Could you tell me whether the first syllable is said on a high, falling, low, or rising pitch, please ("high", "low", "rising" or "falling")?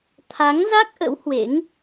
rising